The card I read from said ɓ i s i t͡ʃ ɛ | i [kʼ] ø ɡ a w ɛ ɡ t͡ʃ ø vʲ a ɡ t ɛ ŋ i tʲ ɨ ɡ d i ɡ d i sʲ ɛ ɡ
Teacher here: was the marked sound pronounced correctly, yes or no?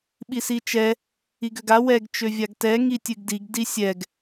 no